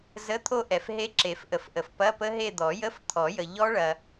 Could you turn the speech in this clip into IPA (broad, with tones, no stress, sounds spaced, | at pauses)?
z ə˧˥˧ t̪ʰ o˥˧ ʔ ɛ˨ f ɦ e˦˥ ǁ e˨˩˦ f ʔ ə˨˩˦ f ʔ ə˨ f p ɐ˧˥˧ p ə˦˥ ɦ e˥˧ d̪ ɔ˨˩˦ j ə˧˥˧ f t̪ʰ ɔ˨˩˦ j ə˨ ʎ ɔ˦˥ ɭ ɐ˨